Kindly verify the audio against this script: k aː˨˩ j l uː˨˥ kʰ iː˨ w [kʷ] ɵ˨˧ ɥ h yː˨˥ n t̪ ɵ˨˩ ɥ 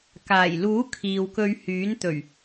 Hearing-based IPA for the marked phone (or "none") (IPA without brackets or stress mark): k